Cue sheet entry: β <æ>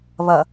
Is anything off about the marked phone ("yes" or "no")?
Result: yes